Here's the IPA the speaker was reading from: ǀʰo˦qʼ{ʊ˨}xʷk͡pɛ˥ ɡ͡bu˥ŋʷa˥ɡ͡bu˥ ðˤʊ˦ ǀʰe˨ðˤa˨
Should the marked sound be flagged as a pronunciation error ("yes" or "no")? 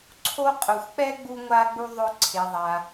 no